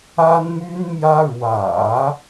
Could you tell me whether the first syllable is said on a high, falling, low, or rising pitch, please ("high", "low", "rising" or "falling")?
high